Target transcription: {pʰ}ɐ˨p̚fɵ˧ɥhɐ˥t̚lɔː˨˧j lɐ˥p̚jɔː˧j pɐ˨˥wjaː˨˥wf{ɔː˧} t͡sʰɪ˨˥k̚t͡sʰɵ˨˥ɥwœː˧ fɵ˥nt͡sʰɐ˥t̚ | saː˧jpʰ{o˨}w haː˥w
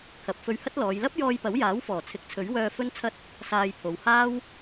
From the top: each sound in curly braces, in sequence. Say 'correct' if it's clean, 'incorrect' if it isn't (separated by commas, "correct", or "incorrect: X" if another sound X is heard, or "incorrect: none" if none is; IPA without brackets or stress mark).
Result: incorrect: kʰ, incorrect: ɔː˨˩, correct